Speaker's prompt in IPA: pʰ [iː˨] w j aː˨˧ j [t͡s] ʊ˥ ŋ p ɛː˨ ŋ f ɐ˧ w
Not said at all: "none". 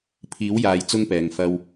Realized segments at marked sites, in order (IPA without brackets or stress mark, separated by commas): iː˨˥, t͡s